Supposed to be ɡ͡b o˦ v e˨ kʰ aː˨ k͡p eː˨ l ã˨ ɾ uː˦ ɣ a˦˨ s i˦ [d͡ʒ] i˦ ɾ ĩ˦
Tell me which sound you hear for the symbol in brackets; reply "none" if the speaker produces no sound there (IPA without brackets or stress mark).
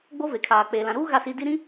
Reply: d